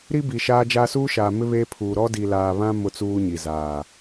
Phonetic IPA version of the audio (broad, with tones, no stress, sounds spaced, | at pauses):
ɾ i˦ b i˨ ʃ aː˦ d͡ʒ aː˦ s uː˦ ʃ aː˨ m ɪ˦ β eː˦ pʰ uː˨ ɾ ɔ˦ d i˨ l aː˨ β ã˦ m ʊ˦ t͡s uː˦ ɲ i˨ z aː˨